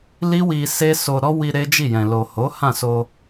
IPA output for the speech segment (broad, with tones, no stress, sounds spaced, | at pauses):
l i˦ w i˧ s e˦ s o˧ ɾ ɔ˦ w i˧ ɾ e˦ d͡ʒ i˦˨ j ɛ̃˨ l o˨ h o˨˦ h ã˦˨ s o˧